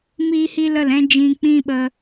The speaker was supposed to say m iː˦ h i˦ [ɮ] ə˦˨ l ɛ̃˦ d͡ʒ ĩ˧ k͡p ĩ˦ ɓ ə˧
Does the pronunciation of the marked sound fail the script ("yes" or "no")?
yes